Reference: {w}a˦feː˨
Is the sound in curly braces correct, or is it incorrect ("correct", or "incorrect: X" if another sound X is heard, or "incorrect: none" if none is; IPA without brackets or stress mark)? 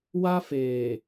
correct